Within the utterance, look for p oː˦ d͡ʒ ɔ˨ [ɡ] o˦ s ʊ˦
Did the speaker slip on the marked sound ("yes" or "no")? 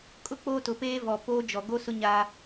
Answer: no